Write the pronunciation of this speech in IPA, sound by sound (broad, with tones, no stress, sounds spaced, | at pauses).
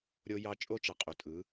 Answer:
ɾʲ o˦ j ɑ˦ t͡ʃʼ o˦ t͡ʃ ɑ˨ qʼ o˨ tʼ ɯ˨˦